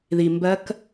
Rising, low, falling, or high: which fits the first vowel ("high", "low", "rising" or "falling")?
low